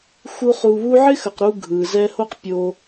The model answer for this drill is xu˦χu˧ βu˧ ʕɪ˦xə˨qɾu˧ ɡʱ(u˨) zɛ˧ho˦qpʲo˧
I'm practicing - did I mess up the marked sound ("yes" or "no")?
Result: yes